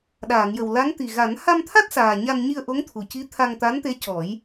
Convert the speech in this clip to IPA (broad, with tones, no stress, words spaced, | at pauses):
ɗaː˨˩˨ŋjə˨˩wla˧˥ŋ t̪i˨˩ ɣa˨˩˦n ha˧mt̪ʰa˦˥t̚ saː˨˩ ɲa˧nɲi˧ə̯ʔo˧˥ŋt̪ʰu˨˩ ci˧˥t̪ʰa˧ŋt̪a˧˥nt̪e˧˥ cɔ˨˩˦j